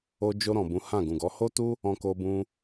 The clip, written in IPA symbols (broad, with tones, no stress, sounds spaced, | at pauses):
o˧ d͡ʒ o˧ ɾ ɔ̃˨ b ũ˨˦ h ã˦˨ ɡ ũ˨ ɡ ɔ˨˦ h o˦ t u˦ | ɔ̃˧ k o˧ b ũ˧